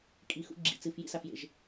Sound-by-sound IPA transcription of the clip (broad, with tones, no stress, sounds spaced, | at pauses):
kʼ i˨ x ṵ˧ ɡ͡ǁ ḭ˨ t͡s ɨ˨ f j ḭ˦ s a˨ f j ḛ˨ ʒ